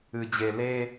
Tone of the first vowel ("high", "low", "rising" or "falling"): low